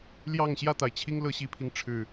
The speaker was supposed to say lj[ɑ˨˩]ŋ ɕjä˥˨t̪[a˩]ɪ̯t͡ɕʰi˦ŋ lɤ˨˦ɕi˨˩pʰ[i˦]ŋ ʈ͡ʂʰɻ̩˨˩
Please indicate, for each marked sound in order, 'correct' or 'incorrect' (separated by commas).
incorrect, correct, correct